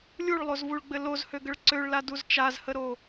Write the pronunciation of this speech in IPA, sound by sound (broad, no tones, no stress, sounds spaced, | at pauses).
lʲ u ɭ lˠ o z v u ɭ ɡ͡b ɘ l o z h ø ɡ ə ɭ ǀ ø ɭ l a d u z t͡ʃ a z h ə ɾ o